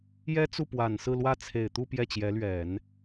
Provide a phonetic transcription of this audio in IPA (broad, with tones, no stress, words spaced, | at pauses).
jɛ˥t͡su˥˩pwa˨˩nsɹ̩˥˧ lwä˥˩ t͡sʰe˨˩ɪ̯t̪u˥˧ pjɛ˥˩t͡ɕjɛ˧˥lɥɛ˨˩˦n